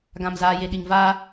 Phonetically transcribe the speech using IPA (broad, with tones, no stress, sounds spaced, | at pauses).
ɡ ã˨ m z aː˨ j e˨ ɗ i˨ ŋ v aː˦